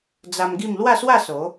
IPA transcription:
d͡z a˧ m ɡ i˥˧ m l w a˥˧ s w a˥˧ s o˨˦

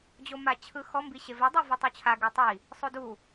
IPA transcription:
d͡ʑ o m a t͡ɕʰ ɯ x ɔ m b i ɕ e v e dˤ o v ɔ tˤ u t͡ɕʰ a ɡ ɯ tˤ i | sˤ o d u

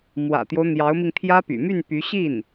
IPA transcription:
m w ä̰˨˩ t̪ j o˦ ʊ̯ n̪ j ɑ˧˥ ʊ̯ m i˧ ŋ t̪ʰ j ä˥ p y̰˨˩ m y˥˩ n p y˧˥ ɕ i˥˩ n

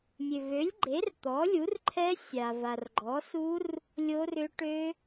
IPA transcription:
mʲ ø˨ v ø˨˥ lʲ ɡ͡ǃ e˨˥ r t̪ ɔ˨˥ lʲ u˨˥ r ǃʰ ɛ˦˥ sʲ a˨ v a˨ r ɡ͡ǃ ɔ˨˥ s u˦˥ r | lʲ o˦˥ r ʏ˦˥ ʈ ø˦˥

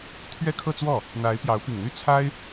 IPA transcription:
t̪ʰ ɥ ɛ˥˧ kʰ ɤ˥˧ t͡s w ɔ˥˩ | n̪ a˧˥ ɪ̯ p j ɑ˧˥ ʊ̯ p i˨˩ ŋ n̪ y˥˩ t͡sʰ a˥ ɪ̯

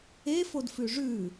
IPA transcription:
e f o d f ʉ ʐ ʉ

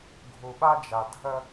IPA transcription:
ɡʱ u˨ ɓ a˦ d͡ʒ a˨ dʱ ə˦

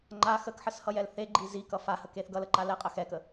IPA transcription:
ŋ͡ǃ a x ə k ħ ə s h ʌ j ɛ l θ e ɡ͡ǃ i z i k ʌ f a h ə k e θ ɡ ʌ l ə ǃ a l ɛ qʼ ə x ɛ k ə

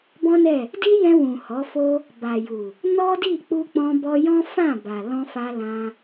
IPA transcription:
b ɔ̃˦ n ɛ˦˨ | d i˦ j ɛ̃˧ w ũ˨ h ɔ˨˦ f o˦ | b a˨ j u˨ | n ɔ˦ d i˦˨ k͡p u˧ k͡p ɔ̃˧ b ɔ˧ j ɔ̃˦ f ã˦˨ b a˨ l ɔ̃˧ f a˧ l ã˧

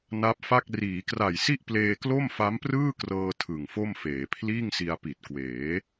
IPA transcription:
n a˦˥ p̚ f a˥˩ k̚ r iː˩˦ k r a˨˩ j s i˥˩ ʔ p l eː˧ k l o˥˩ m f a˦˥ m p r ɯː˥˩ k r ɤː˧ tʰ ɯ˨˩ ŋ f o˥˩ m f eː˩˦ pʰ l iː˥˩ ŋ s i˧ a̯ p i˨˩ t̚ k w eː˩˦

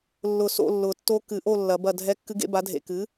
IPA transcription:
lː ʊ˧˩ s o̰˥˨ lː ʊ˨˩˦ tː o˧˥ k ɨ˨˩˦ ʔ o˥˨ lː ɐ˨˩˦ b ɐ˧˩ dʱ ɛ˧˥ kː ɨ˧˥ ɡ ḛ˧˥ b a˩˥ dʱ ḛ˧˩ k ɨ˩˥

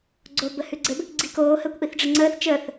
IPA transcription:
ɡ͡ǀ o b ə h ʉ ɡ͡ǀ ɘ b | ɡ͡ǀ i k oː h əː kʷ ʔ i θ ɖ͡ʐ ɘ ŋ͡ǀ əː θ t͡ʃ əː θ

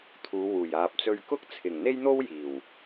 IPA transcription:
t̪ʰ uː˨˧ w uː˨˩ j aː˨ p̚ t͡s ɵ˧ ɥ k ʊ˥ k̚ t͡sʰ ɪ˨˩ ŋ n̪ e˥ j n̪ o˥ w j iː˨˩ w

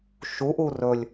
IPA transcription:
ʃ u ʔ u r ɵ lʲ

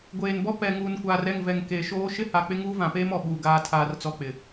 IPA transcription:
ɡʷ eː˨ n b ɔ˦ p ɛ˨ ŋ uː˨ n kʷ aː˨ r ɛ˦˨ ŋ v ɛ˨ ŋ k eː˨ ʃ oː˦ ʃ ɪ˦ h a˨ k͡p ɪ˦ ŋ uː˦ v ã˨ p eː˦ m ɔ˨ ɓ uː˨ ɡ aː˨ tʰ aː˨ r t͡s ɔ˨ k͡p ɪ˨

